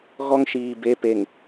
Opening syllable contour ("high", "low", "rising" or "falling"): high